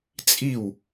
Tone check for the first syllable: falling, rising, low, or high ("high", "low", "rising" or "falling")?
falling